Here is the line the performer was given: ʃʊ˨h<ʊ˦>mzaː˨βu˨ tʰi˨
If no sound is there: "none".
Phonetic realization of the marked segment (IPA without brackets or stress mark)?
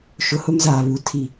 ʊ˦